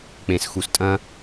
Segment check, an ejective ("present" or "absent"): present